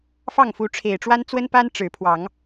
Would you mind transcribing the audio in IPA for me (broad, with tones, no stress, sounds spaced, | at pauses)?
f ɑ˥˨ ŋ f u˨˦ ʈ͡ʂʰ e˨˩ ɪ̯ ʈ͡ʂ w a˦ n t͡s w ə˦ n p a˦ n ʈ͡ʂ ɻ̩˨˦ pʰ w ɑ˨˦ ŋ